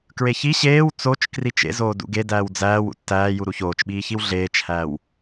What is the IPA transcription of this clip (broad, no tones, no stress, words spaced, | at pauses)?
kɹeçi ɕeːw t͡sot͡ʃ krit͡ʃḛzoː dṵɡe dæːwd͡zæːw ṵtːæːju ɾuçoːt͡ʃɓiːçiw ɮeːt͡ʃhæːw